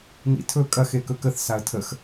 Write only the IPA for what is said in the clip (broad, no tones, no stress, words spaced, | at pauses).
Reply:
nḭtʰɵ kʼɐx ekɵkəθ saə̯tʰəx